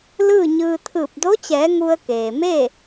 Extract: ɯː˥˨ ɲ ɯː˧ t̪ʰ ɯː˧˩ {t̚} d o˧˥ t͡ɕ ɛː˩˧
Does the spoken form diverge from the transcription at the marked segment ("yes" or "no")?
yes